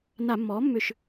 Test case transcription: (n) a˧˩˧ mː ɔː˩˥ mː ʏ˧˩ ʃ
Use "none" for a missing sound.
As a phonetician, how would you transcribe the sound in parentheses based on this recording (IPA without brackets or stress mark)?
n